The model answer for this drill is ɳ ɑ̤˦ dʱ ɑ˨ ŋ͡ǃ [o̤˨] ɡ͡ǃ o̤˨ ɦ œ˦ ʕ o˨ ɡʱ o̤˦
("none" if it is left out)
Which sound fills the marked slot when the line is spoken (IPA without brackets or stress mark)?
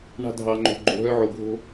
o̤˨